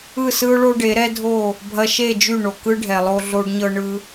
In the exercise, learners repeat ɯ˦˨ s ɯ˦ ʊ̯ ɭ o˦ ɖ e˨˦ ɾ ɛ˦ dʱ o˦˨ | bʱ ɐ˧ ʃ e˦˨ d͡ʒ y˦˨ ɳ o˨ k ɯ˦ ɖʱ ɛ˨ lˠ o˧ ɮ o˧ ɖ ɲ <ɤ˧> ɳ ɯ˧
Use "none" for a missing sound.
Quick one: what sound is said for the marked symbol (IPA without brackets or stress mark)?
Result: ɤ˧